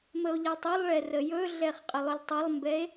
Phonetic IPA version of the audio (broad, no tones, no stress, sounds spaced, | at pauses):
m ə o̯ ʎ a tˤ ə lˠ ɭ ɛ r ə j ɵ ɮ ɛ χ qʼ ə lˠ ɵ lʲ tˤ ə lˠ m b ɛ e̯